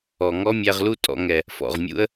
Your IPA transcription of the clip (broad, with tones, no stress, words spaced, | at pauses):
ɔ˨ ŋɔ˦mʲæ˧ʁlu˦ tʼɔ̰˨ŋɛ˨ | fɔ̰˨ʁmʲṵ˦ə̯